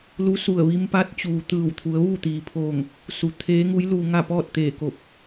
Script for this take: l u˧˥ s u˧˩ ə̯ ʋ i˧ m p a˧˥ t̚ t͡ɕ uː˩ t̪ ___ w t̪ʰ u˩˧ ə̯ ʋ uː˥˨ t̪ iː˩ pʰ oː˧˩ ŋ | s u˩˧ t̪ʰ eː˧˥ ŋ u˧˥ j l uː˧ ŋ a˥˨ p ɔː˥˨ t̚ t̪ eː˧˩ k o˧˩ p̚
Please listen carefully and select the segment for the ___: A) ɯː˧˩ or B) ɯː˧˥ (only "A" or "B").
A